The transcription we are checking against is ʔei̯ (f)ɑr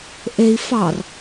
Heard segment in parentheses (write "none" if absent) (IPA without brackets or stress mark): f